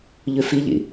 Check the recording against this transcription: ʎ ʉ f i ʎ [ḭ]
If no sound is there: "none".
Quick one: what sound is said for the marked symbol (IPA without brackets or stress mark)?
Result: ḭ